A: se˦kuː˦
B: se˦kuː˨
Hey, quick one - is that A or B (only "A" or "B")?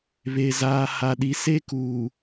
B